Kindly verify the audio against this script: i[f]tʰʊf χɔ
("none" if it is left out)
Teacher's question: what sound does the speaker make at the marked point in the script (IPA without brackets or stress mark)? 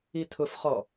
none